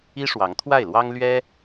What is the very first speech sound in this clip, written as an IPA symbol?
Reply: i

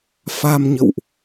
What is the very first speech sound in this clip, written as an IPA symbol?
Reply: f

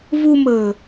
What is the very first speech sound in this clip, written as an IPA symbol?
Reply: v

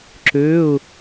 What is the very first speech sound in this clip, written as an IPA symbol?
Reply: ǁ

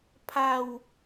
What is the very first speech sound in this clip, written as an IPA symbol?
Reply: pʰ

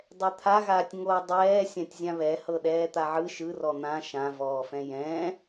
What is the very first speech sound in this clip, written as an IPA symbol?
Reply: dˤ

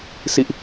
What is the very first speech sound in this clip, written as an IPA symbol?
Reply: s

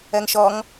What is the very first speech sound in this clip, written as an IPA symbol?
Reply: ɜ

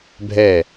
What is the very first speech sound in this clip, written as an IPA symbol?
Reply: bʱ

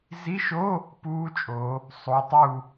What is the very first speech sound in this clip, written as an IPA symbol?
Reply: z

